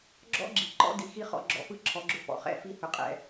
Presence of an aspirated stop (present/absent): present